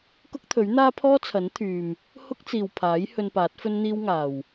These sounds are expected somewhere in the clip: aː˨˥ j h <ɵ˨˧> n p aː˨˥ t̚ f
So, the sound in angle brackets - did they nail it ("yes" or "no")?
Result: no